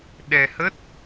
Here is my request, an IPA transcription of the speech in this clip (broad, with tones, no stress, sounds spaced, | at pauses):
ɗ ɛ˧ h ə˦˥ t̚